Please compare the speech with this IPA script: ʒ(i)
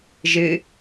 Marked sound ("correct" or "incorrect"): incorrect